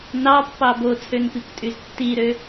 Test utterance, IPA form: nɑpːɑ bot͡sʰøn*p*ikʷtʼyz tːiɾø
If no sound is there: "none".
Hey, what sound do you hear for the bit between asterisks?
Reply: p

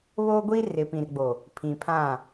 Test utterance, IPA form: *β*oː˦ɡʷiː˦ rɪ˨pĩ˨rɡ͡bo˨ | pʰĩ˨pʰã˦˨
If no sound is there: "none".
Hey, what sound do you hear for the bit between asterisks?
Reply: β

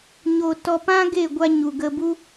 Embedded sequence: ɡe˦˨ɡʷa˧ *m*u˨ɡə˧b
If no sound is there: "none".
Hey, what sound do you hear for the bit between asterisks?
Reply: ɲ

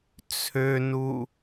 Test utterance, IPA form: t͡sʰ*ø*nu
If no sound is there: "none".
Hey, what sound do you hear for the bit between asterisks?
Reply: ø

